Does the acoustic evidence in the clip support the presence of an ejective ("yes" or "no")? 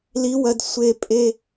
yes